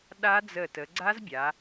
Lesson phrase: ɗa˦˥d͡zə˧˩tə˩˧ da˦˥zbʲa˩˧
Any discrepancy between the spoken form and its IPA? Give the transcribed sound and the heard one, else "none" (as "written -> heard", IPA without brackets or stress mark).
d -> ɡ͡ǀ